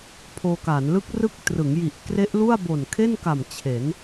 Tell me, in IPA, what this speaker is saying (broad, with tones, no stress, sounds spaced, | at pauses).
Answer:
pʰ oː˧ k aː˩˦ n l ɯ˦˥ k̚ r ɯ˦˥ k̚ t r ɯ˩˦ ŋ j i˨˩ ʔ k r e˦˥ ʔ l u˥˩ a̯ b o˨˩ n kʰ e˥˩ n k a˨˩ m t͡ɕʰ e˩˦ n